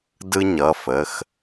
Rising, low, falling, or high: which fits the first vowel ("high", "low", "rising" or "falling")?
high